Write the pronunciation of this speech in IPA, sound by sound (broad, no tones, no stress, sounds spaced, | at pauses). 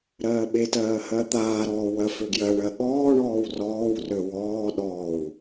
ɾ ɜː ɓ e t ɜː h ɜ t̪ aː ɾ ɔː w ɜ f ø ɡ j ɜ ɳ ɜ ɠ ɔː ɳ ɔː w r ɔː w r ø w ɔː ɗ ɔː w